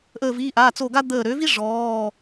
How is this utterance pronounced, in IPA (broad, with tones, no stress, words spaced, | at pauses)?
ʔəː˧˩viː˩˧˩ʔaː˩˧˩ t͡so˧˩ ɡa˥ d̪əː˧˩ ɾø˩˥vi˥ ʐɔː˩˧˩